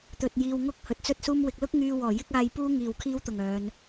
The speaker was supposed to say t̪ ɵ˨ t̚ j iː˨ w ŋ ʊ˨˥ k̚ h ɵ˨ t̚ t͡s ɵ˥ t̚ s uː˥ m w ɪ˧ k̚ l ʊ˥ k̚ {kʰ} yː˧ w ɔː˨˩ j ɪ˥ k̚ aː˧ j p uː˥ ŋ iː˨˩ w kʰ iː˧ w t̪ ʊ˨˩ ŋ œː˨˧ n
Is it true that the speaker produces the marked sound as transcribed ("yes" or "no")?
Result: no